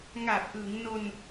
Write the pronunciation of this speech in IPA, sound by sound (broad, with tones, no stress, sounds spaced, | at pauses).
ŋ a˨˩ p̚ ʔ ɯ˩˦ ŋ n o˧ n